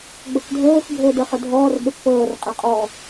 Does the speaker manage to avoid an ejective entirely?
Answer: no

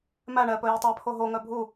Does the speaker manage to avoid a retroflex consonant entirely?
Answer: no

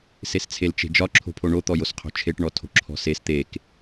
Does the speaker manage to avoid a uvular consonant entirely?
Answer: no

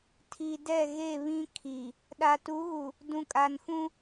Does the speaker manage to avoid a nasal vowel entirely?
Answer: no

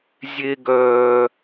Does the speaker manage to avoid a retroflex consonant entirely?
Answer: yes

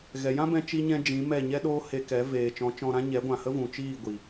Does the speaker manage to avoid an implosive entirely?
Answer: no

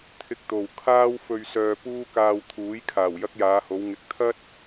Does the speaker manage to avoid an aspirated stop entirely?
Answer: no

